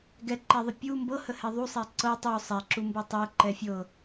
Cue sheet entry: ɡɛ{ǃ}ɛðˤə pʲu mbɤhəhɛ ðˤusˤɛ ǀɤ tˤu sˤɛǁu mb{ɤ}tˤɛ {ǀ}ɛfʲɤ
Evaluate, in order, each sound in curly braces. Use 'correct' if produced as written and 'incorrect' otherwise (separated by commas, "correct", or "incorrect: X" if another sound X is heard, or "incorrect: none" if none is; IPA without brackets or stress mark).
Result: correct, correct, incorrect: ǃ